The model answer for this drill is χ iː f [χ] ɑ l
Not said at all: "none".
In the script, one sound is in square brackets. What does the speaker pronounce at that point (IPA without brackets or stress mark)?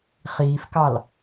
k